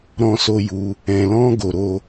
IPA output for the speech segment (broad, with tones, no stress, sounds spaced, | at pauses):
ɾ ɔ̃˧ s o˧ j u˧ | ɛ̃˧ l ɔ̃˦ ɡ o˧ ɾ o˧